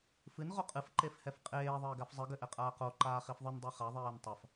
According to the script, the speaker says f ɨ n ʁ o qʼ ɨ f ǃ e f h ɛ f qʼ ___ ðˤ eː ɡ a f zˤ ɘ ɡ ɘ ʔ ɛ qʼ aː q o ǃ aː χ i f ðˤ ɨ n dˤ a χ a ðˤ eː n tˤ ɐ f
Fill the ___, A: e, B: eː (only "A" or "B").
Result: B